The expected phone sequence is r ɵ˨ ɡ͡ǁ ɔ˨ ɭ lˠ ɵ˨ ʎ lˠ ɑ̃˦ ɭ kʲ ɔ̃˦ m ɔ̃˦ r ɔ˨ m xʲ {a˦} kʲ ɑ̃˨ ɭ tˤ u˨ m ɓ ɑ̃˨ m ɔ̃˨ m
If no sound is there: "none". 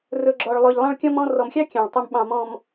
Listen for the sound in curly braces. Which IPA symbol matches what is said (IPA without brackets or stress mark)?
ɑ˦